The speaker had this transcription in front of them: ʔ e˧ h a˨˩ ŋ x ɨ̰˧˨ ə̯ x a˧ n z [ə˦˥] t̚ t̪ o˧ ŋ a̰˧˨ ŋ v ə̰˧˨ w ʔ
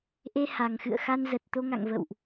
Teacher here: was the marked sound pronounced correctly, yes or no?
no